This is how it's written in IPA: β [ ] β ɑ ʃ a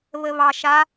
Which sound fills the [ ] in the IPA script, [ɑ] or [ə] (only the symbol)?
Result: ə